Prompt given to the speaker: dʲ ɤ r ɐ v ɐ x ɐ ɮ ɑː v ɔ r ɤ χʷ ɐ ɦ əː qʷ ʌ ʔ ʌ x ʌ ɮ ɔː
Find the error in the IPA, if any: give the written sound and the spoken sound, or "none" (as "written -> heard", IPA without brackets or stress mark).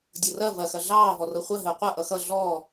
none